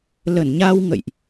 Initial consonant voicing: voiced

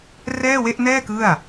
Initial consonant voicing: voiced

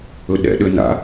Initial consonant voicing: voiced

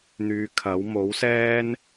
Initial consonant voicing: voiced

